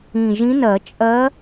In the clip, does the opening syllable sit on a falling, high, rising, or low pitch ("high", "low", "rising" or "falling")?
low